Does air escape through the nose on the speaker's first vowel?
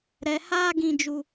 no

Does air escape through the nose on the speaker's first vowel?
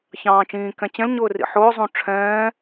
yes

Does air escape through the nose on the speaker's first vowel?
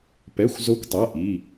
no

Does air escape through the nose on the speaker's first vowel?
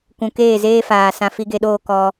yes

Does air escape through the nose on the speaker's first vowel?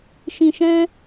yes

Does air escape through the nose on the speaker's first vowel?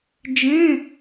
yes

